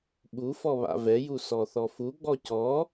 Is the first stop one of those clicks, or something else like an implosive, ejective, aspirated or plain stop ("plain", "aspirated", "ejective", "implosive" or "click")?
implosive